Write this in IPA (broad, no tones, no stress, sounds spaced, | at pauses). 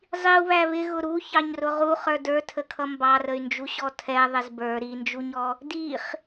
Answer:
zˤ i u̯ β æ β ɪ ɣ ʊ ɾ u ç ɑ ɲ r ʊ ʁ u χ ə˞ d ə˞ tʰ ə kʰ ʌ m b ɑ r ə y̯ n d͡ʒ u ɕ ɔ tʰ ɛ ðˤ ɪ z b ə˞ ɾ i n d͡ʒ u ɲ ɔ | d i χ